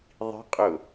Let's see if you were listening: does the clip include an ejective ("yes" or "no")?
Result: yes